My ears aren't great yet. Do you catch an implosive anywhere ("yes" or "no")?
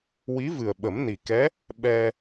yes